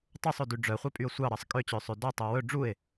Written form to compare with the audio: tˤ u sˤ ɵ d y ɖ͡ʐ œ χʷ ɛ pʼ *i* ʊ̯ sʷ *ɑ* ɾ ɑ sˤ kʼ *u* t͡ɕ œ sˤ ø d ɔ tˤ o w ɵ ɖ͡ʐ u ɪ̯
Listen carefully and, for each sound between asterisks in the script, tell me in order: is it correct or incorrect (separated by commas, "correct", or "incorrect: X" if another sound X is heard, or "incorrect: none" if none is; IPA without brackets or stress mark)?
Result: incorrect: y, correct, incorrect: ø